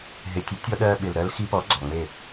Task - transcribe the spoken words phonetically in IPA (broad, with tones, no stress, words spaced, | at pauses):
ɦɪ˨ tʲe˨˦tʲɔ˧ ɗɜ˧ɓɪ˨l ɾɜ˧lxi˧pɔ˨˦ ɡ͡ǀɔ˨ŋ͡me˦˨